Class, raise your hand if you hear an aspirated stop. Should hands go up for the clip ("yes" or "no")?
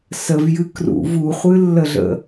no